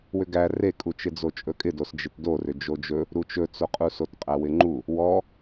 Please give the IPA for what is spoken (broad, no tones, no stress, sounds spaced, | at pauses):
w ʏ ɡ æ r e kʼ u t͡ʃ ɪ d͡z o t͡ʃʼ ɵ kʼ ɪ d o s d͡ʒ ɪ t d o r ʏ d͡ʒ o d͡ʒ ɵ | ɾ u t͡ʃ ɵ t͡s o qʼ u s o t qʼ æ w ɪ ŋ͡ǃ u | w ɔ